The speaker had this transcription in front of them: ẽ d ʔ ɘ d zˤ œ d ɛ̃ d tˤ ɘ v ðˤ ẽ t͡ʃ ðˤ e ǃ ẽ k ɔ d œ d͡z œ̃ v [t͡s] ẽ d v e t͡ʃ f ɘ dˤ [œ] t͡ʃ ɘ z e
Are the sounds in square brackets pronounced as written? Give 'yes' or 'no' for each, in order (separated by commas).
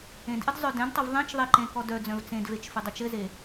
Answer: yes, no